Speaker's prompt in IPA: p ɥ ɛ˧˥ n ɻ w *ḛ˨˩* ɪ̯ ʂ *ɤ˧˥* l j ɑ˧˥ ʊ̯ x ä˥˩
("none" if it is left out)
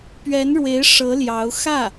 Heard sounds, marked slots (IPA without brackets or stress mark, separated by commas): e˧˥, ɤ˧˥